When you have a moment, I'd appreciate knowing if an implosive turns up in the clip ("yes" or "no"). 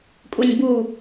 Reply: no